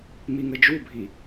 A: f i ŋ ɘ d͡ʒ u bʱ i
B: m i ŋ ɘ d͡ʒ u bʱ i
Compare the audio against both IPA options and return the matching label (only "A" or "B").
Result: B